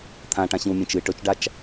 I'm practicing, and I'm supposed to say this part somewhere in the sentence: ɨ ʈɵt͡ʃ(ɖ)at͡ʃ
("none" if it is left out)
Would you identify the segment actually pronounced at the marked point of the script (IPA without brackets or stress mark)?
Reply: ɖ